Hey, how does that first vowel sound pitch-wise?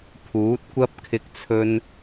rising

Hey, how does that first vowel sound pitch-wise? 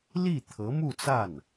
falling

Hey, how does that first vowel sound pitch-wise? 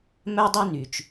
high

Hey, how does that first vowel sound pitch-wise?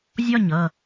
falling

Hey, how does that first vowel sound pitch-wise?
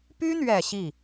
high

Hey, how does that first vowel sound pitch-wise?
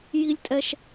high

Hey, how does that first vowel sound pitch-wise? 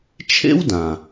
high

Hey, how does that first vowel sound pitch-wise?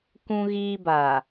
high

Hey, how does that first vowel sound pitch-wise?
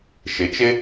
rising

